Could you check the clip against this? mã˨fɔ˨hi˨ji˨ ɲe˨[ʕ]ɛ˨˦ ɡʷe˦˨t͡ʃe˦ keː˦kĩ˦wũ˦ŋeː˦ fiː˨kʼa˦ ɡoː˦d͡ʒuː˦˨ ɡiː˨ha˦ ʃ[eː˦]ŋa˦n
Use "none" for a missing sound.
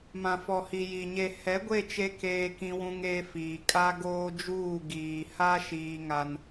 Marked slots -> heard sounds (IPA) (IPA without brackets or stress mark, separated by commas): h, iː˦